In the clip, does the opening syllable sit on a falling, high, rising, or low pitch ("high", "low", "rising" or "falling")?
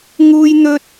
high